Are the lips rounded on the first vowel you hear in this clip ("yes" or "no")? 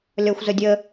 yes